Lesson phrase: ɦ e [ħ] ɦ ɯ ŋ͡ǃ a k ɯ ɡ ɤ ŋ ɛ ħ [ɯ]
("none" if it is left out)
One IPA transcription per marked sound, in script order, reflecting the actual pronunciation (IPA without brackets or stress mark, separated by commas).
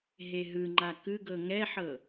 none, ɤ